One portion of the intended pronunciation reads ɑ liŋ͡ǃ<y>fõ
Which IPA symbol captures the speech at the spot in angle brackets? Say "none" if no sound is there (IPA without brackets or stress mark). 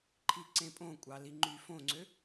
y